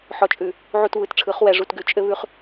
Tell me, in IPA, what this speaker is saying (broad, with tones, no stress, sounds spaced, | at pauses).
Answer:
ħ ɔ˨ t͡ʃʼ ʉ˨ | ʕ u˨ t β ɯ˨˦ t ʈ͡ʂʰ ɯ˨˦ χ w ɛ˨ ʐ u˨ t ɡ ʉ˨ t͡ʃʼ ɘ˦ β ʉ˦ χ